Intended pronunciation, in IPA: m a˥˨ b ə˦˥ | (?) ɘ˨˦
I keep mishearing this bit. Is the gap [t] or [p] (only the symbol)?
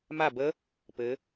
p